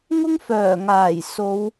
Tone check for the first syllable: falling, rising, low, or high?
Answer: high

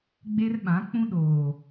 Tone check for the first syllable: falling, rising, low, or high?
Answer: high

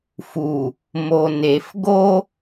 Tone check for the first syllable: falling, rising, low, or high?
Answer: low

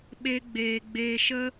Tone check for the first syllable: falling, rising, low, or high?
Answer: high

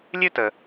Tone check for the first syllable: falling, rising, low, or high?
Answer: high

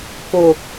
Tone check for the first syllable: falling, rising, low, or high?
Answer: low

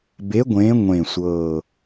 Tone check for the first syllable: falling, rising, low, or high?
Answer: rising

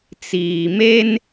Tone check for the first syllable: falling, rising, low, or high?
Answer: low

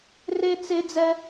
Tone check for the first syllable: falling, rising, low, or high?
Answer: high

